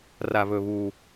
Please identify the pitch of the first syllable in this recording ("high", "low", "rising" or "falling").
low